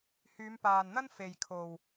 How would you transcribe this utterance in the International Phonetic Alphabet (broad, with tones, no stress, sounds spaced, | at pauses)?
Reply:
h yː˨˧ m p aː˨ n n̪ ɐ˥ n f e˨ j kʰ o˨ w